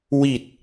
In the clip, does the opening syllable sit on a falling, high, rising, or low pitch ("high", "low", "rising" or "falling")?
low